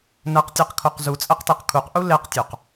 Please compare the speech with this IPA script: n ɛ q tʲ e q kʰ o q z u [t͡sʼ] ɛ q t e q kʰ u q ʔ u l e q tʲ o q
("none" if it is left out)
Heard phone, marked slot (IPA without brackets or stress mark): t͡sʼ